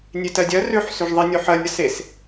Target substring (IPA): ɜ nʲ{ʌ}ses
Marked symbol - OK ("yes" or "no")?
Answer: yes